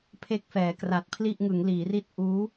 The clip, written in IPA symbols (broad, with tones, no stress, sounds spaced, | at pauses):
pʰ e˥˩ k̚ f ɛː˩˦ k r a˨˩ t̚ pʰ l i˥˩ ʔ ŋ ɯ˩˦ ŋ l iː˩˦ r i˥˩ t̚ ʔ uː˦˥